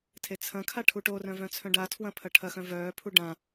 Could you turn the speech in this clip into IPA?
tʰet͡sʰɐ̃kʰa ʈʰuʈorœ̃ vœ̃t͡sʰœ̃ɖatʰwɐ̃ pʰɐʈʰɐxœ̃ vœːpʰu ɖã

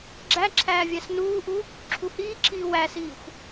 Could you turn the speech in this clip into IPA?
ɡ͡ǁæ ǁʰæːvʲæsnuːʔu | ǁʰuhiːǁʰiː wæsiːxʷ

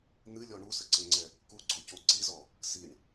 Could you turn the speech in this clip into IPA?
n̪ɨlʲɔ ɳusəǀəŋ͡ǀɛ | kuɡ͡ǀoco ǀizɔ | siɳ

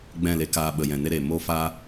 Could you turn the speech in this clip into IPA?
ɡ͡bɛ̃˦˨le˧kaː˧ ɓə˨jɛ̃˨ne˦ɾeː˨ moː˦faː˦

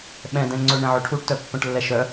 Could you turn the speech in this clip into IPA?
ɓɛ̃dɛ̃ ŋ͡ǀɵ ɳɛ̃ʕɵʈʰuʈtœ pːœ̃ʈlːɛʃœ

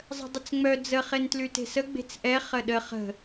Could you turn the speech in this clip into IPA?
zˤə̤dˤɪt͡sŋ͡mœ d͡zə χentlyte̤sə ɡ͡be̤t͡sʔɛ χəɗə χə̤

